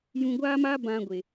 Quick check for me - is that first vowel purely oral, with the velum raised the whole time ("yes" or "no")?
no